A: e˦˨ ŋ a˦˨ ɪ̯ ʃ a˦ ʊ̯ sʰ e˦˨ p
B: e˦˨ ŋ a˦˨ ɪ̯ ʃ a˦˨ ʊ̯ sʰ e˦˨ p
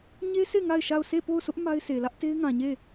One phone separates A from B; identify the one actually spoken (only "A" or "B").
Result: B